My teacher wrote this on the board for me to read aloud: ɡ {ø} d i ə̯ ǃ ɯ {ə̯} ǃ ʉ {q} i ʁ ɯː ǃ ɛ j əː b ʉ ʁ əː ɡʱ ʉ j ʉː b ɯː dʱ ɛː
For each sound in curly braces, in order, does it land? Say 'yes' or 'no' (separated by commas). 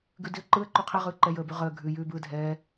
no, yes, no